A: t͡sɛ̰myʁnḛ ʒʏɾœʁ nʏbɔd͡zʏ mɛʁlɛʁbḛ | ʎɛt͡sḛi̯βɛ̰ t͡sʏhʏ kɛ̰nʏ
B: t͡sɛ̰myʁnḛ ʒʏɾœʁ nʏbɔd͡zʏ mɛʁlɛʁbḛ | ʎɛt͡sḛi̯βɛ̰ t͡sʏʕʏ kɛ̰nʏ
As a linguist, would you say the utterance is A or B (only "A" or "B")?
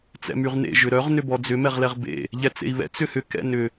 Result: A